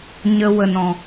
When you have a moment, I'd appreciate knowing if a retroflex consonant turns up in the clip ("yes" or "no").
no